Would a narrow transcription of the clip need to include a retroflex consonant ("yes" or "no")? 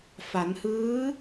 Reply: no